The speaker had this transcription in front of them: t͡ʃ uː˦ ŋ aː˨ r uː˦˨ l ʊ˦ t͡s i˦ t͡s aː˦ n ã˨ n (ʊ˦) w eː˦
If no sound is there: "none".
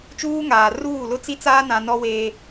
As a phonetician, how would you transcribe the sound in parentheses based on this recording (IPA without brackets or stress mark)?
ɔ˦